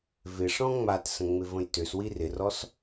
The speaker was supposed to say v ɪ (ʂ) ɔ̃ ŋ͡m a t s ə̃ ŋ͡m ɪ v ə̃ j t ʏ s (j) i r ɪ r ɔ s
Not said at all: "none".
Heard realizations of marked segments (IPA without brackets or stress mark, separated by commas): ʂ, w